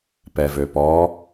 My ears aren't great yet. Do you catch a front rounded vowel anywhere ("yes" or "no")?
yes